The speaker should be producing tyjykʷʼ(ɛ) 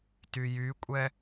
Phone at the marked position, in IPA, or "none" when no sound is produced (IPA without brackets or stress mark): ɛ